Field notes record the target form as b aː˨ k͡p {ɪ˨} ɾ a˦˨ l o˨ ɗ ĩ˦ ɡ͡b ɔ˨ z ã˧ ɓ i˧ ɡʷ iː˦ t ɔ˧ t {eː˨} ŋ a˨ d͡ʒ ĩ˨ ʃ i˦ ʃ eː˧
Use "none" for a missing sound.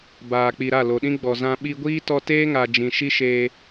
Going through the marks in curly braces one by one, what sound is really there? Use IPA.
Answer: i˨, eː˦

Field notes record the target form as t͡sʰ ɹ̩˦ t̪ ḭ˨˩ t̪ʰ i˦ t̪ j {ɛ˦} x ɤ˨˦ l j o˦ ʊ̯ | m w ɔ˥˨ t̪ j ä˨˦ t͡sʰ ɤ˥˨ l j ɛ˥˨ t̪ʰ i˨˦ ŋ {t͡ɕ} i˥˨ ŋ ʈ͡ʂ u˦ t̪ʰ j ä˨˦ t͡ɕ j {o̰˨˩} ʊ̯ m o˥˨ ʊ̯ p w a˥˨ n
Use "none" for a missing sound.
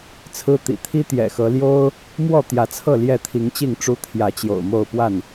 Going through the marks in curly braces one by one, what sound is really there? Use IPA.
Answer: ɛ̰˨˩, t͡ɕ, o̰˨˩

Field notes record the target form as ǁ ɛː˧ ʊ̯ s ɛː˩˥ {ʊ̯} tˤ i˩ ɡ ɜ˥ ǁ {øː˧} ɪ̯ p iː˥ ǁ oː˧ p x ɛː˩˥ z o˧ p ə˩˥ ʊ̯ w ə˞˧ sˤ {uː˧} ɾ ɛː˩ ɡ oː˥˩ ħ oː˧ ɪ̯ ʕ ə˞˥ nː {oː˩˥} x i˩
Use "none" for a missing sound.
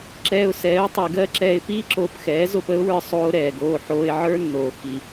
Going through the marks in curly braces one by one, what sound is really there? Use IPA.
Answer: ʊ̯, ɛː˧, oː˧, oː˩

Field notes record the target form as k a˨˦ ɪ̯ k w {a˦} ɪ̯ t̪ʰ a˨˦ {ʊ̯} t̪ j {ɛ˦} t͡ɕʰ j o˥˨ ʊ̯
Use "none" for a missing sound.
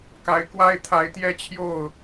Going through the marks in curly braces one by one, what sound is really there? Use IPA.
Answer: a˦, ɪ̯, ɛ˦

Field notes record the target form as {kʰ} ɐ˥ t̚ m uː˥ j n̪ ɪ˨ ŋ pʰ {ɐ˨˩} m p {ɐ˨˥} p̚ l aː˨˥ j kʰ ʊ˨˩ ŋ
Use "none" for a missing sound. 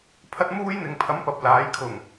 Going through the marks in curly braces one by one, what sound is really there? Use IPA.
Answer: pʰ, ɐ˨˥, ɐ˨

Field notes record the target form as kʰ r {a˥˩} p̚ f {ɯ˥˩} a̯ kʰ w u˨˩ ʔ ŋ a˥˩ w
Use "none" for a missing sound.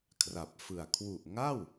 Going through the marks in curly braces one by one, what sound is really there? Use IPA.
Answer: a˨˩, ɯ˨˩

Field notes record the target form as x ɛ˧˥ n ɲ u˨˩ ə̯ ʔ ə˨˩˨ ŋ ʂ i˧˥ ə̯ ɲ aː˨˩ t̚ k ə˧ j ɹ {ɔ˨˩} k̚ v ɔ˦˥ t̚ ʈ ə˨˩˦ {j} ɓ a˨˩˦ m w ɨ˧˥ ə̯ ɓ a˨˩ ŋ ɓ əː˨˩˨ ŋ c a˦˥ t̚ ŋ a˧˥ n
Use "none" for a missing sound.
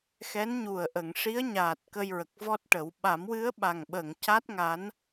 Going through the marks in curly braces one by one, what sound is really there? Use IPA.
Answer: ə˨˩, w

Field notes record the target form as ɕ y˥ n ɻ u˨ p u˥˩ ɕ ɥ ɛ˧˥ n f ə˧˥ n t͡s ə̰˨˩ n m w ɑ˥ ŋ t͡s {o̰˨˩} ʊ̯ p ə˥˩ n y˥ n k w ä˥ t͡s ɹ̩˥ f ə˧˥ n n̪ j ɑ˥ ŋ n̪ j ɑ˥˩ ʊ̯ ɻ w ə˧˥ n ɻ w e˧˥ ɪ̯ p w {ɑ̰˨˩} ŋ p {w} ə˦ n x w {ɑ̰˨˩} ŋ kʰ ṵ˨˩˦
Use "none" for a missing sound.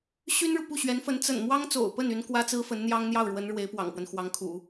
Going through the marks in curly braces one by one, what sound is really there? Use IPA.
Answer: o̰˨˩, ɑ̰˨˩, w, ɑ˧˥

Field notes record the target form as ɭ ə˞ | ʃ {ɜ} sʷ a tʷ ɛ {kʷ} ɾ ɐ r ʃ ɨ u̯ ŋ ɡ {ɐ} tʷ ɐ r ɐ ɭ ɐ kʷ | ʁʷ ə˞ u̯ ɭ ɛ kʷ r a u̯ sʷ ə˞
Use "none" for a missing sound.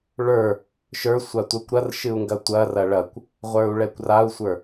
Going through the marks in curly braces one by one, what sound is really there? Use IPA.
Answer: ə˞, kʷ, ɐ

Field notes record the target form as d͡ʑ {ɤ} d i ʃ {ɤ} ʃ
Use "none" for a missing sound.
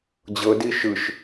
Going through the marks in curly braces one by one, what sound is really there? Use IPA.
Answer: ɤ, ɯ

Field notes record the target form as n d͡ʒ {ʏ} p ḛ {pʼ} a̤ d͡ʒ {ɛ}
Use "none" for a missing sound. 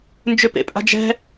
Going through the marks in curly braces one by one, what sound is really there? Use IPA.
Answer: ʏ, pʼ, ɛ̤

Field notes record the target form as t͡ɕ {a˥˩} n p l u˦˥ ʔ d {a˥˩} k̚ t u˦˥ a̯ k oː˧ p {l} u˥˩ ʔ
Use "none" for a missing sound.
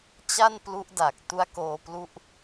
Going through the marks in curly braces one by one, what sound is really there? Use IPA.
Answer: a˥˩, a˨˩, l

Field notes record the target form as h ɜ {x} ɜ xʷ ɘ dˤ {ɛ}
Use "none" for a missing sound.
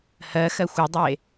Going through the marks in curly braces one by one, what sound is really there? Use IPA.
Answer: x, e

